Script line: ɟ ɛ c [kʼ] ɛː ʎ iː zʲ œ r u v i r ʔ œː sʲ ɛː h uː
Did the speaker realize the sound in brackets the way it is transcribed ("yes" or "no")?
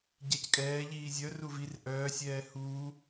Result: yes